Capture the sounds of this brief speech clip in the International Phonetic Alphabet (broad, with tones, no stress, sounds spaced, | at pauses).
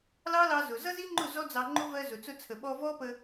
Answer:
l ɑ˦ l ɑ˧ z ʊ˨ z ʌ˦ z i˦ ŋ͡ǃ ʊ˦˨ z ɔ˦ d͡z ɑ˧ ŋ͡ǃ ʊ˦ v ɜ˧ z ʊ˨ t͡s ʊ˧ t͡sʰ ə˨ ɓ ɔ˧ v ɔ˦ p ə˧